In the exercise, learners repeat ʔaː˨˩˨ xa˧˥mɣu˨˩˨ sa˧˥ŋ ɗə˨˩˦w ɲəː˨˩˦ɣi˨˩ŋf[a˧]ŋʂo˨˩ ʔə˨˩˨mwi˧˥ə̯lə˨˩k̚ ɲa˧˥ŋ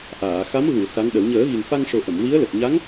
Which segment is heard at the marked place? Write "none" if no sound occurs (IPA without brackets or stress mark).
a˧